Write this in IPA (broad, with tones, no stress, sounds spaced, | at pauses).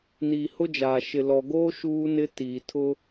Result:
n iː˨ h ʊ˦ d͡ʒ aː˨ ʃ ɪ˨ l ɔ˨ ɡ oː˦ ʃ uː˦ n ɪ˦ t iː˨ tʰ ʊ˦